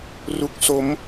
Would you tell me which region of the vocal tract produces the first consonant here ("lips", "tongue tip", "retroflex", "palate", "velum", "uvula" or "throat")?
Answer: tongue tip